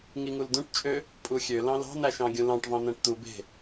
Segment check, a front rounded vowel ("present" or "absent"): present